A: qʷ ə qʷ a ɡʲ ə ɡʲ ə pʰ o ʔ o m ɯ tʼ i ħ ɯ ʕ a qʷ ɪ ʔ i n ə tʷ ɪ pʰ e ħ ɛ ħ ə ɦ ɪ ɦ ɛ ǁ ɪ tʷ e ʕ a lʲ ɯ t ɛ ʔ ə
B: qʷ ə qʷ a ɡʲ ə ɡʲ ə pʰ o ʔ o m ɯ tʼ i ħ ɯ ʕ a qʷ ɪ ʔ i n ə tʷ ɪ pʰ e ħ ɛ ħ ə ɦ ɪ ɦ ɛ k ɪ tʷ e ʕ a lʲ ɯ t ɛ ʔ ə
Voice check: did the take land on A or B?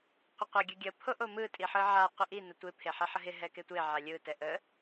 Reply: B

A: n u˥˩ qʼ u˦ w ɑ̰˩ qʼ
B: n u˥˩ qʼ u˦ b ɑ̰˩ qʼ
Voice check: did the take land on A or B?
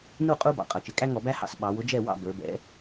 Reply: B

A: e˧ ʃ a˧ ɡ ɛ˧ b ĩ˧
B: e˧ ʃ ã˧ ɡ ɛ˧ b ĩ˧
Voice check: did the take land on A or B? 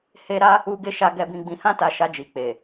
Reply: A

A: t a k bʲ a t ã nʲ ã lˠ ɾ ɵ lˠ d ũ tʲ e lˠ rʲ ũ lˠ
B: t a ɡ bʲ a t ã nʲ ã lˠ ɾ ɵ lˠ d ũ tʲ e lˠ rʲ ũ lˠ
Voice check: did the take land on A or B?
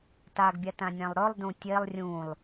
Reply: B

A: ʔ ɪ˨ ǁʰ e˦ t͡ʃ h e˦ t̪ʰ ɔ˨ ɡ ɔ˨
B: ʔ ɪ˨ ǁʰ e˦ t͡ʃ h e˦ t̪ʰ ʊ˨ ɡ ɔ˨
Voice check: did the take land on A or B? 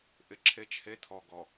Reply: A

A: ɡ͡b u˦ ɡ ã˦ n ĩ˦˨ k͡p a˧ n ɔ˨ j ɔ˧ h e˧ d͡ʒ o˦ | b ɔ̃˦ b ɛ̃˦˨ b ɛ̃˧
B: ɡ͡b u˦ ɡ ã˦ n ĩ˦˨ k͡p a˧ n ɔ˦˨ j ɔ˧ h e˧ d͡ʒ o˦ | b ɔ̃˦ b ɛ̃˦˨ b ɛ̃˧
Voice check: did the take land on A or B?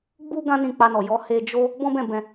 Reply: A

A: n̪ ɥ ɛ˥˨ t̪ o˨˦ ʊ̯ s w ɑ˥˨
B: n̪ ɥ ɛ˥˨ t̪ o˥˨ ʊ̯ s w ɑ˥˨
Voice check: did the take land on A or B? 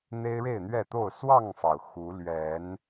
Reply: B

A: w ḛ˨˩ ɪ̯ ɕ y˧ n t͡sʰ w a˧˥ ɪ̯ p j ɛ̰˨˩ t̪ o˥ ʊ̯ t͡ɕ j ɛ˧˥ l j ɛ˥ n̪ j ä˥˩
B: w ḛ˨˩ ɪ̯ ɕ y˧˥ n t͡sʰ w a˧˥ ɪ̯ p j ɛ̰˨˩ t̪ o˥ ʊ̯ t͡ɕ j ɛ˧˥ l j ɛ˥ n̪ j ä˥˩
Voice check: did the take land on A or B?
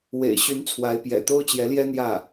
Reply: B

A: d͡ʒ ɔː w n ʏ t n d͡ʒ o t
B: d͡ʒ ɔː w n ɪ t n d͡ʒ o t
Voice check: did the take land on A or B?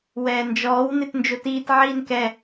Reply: B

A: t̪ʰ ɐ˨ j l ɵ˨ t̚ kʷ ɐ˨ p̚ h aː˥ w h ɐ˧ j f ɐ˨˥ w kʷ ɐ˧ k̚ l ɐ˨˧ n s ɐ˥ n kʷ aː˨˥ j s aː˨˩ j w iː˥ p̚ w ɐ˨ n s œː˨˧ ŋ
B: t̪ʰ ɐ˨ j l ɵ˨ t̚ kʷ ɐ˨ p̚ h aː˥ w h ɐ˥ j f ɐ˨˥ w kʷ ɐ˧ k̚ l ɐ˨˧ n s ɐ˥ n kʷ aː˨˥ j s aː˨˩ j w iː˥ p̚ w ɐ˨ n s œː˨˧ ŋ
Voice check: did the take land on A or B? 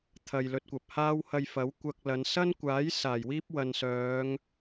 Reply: A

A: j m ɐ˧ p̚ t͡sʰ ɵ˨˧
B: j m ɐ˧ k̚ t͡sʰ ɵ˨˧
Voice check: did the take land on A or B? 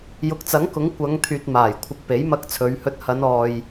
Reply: B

